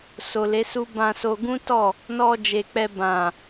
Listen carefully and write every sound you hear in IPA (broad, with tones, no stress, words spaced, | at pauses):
so˨le˨˦su˦ bã˧so˧ ɡũ˦tɔ˦˨ | nɔ˧ d͡ʒe˨k͡pɛ˧bã˨